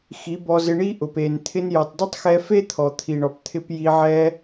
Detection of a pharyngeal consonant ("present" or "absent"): present